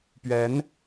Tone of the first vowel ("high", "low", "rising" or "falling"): rising